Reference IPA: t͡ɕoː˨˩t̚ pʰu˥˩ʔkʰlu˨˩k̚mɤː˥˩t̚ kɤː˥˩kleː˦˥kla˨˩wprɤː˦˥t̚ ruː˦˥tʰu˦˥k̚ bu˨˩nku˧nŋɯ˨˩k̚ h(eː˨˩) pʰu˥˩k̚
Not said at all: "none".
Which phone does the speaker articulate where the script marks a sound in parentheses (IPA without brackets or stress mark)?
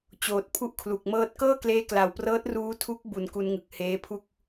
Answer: eː˦˥